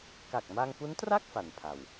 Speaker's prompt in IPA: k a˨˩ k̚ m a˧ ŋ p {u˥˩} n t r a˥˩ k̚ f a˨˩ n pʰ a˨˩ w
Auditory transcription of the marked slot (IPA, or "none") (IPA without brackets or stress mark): u˦˥